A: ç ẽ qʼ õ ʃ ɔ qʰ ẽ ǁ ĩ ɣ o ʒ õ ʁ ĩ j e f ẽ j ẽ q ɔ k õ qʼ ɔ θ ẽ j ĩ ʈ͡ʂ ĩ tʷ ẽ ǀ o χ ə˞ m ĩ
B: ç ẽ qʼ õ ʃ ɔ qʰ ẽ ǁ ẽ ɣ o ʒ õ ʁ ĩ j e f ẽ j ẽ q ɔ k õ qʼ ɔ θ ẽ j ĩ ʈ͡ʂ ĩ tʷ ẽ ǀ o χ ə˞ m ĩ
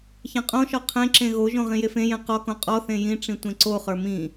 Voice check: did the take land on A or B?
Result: B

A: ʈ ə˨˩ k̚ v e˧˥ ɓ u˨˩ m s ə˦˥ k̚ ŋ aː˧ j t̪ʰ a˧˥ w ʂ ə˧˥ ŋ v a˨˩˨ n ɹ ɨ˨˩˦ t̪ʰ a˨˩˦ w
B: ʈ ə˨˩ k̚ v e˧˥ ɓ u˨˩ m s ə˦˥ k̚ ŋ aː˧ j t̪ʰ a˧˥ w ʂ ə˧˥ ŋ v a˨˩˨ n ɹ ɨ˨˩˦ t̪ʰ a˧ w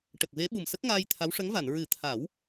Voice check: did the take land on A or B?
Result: A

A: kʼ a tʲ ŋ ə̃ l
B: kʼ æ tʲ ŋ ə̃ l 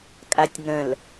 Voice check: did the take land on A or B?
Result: A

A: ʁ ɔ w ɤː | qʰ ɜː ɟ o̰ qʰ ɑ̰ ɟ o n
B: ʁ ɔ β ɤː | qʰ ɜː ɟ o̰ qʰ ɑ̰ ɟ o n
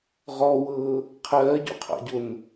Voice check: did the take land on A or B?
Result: A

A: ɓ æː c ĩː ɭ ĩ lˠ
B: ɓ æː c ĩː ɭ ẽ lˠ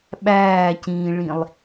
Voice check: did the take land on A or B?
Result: A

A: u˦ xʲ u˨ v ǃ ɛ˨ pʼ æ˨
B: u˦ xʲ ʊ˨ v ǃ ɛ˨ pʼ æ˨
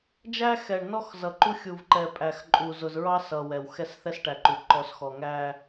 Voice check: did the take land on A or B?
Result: A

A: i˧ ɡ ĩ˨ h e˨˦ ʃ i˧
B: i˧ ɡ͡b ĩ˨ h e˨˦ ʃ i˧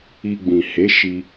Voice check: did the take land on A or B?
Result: B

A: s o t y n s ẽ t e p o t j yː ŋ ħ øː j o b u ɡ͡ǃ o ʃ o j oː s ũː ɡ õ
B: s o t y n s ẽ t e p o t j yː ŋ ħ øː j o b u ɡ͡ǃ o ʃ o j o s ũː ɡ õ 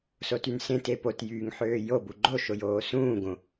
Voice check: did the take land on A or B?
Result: A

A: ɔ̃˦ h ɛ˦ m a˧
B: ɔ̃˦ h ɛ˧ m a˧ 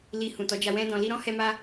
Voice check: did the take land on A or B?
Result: B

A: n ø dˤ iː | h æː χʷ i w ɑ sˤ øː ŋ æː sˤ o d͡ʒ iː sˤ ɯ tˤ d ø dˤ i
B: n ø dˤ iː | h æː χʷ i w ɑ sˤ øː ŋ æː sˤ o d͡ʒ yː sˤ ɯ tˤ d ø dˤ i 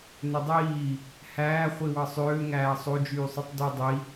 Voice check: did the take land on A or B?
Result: B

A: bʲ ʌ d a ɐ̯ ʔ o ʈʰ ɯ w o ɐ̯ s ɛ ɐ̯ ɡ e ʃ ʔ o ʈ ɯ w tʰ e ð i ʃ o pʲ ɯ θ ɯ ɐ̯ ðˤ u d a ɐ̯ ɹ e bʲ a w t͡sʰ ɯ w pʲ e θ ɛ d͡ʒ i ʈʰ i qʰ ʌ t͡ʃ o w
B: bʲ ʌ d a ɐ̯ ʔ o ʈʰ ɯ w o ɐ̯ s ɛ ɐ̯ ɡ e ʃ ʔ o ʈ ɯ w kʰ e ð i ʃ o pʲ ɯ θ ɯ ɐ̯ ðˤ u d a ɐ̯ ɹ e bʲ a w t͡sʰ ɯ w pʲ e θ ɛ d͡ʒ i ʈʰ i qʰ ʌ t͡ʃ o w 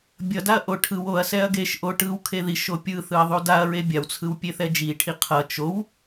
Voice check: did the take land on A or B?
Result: B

